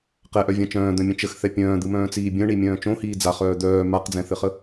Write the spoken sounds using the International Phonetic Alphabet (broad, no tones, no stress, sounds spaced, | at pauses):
q ɛ ʔ œ vʲ ã t͡ʃ œ̃ː d̪ œ̃ mʲ œ̃ t͡ʃ ə x θ ɛ pʲ œ̃ː d̪ ɯ m œ̃ː t͡s iː bʲ œ̃ ɳ i mʲ œ̃ː t͡ʃ õ h iː d͡z a χ œː d̪ œː m a q d͡z ɛ̃ θ ɘ χ ə